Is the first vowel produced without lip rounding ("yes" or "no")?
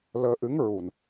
yes